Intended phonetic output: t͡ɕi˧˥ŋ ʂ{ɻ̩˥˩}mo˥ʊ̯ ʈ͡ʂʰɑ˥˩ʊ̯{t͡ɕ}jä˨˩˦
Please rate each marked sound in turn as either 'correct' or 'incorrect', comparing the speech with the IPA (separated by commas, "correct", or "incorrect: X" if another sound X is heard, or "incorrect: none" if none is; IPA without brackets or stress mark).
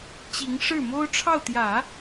correct, incorrect: t̪